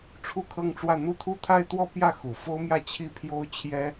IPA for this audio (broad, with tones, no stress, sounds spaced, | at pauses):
ʈ͡ʂʰ u˥ kʰ ɤ˥˧ ŋ ʈ͡ʂ w ä˥˧ n̪ u˥˧ t̪ʰ u˥˧ t̪ʰ a˥˧ ɪ̯ t̪ w ɔ˥˧ p j ä˥˩ x u˨˩ f o˥ ʊ̯ m j ä˥˧ t͡ɕʰ i˥˩ pʰ j o˥ ʊ̯ t͡ɕʰ j ɛ˥